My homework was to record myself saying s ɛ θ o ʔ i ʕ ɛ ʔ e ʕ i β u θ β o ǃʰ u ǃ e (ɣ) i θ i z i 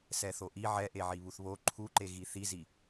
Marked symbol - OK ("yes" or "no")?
yes